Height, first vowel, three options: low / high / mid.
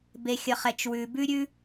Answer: mid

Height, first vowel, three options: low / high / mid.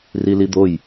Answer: high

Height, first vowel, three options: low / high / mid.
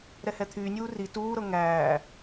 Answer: mid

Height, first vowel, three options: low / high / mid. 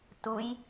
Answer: high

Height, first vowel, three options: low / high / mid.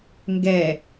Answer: mid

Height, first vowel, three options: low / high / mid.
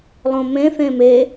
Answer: mid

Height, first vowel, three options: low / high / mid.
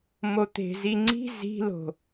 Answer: mid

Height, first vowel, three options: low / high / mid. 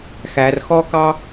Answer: low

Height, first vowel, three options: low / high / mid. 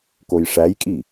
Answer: mid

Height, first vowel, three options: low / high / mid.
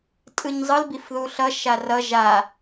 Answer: high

